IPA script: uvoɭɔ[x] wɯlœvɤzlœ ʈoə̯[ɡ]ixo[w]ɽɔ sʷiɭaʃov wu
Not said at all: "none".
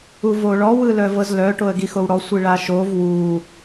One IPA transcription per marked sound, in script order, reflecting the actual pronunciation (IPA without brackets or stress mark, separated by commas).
none, ɡ, w